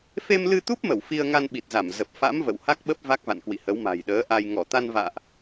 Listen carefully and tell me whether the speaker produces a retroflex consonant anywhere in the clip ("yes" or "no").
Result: no